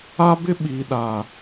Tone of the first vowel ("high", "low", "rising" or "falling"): high